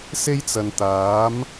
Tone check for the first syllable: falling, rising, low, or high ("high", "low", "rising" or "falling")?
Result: high